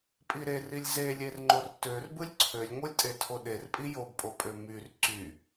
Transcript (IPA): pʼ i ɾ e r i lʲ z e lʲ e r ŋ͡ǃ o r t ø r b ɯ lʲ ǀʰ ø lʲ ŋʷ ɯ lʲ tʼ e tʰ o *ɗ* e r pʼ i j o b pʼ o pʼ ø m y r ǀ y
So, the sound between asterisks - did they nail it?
yes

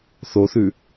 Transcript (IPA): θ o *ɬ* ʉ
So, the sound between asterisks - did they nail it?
no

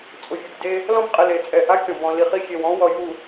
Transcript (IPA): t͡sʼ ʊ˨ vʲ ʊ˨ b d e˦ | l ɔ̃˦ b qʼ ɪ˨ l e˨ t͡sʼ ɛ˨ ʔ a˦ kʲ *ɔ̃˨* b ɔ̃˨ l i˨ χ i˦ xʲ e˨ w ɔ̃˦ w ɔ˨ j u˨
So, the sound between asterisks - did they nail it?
yes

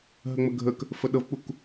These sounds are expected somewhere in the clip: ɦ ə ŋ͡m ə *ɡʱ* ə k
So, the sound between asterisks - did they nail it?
yes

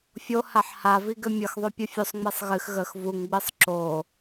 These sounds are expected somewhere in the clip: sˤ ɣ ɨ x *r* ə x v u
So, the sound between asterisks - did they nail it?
no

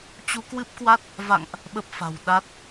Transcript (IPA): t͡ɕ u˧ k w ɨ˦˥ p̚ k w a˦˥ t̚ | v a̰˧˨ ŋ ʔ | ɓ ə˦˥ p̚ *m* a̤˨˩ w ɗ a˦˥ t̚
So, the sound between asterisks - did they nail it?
no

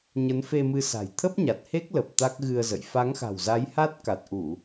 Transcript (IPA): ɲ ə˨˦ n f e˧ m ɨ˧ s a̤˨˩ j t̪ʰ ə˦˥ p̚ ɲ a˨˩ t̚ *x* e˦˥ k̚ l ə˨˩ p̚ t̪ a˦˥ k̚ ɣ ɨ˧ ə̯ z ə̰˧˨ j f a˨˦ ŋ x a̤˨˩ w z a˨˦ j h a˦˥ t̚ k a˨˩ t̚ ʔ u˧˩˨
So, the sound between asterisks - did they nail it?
no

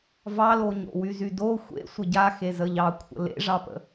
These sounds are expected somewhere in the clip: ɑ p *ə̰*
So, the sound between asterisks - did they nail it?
yes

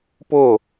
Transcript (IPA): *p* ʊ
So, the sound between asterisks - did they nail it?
yes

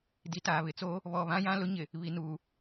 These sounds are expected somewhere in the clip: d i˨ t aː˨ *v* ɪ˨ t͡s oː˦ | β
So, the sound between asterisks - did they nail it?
no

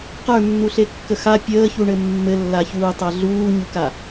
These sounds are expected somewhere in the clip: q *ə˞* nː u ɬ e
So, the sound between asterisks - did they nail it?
yes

